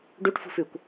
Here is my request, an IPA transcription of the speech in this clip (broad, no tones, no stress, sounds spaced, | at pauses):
ɖ u ʈ f ṳ f ʉ kʷ